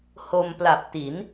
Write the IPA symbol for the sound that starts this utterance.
h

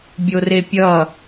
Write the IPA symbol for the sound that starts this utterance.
bʲ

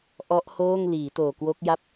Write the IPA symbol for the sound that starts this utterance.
ʔ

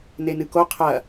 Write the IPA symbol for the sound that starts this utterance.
n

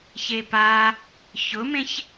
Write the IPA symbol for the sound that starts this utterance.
ç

